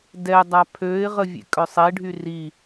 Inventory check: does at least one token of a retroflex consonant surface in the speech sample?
yes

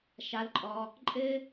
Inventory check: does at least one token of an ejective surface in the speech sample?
yes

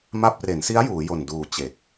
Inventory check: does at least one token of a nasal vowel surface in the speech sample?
no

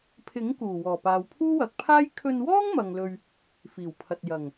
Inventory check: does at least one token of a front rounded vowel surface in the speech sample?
no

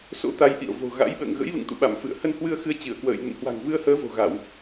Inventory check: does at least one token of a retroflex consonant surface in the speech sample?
no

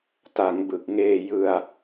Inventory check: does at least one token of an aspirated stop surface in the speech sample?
no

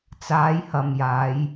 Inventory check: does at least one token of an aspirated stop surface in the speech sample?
no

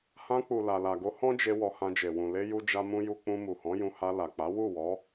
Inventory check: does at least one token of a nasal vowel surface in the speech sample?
yes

